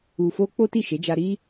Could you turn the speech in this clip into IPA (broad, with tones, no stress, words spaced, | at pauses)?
u˧fo˦ k͡po˦ti˦˨ʃe˨˦d͡ʒa˧ ɾi˦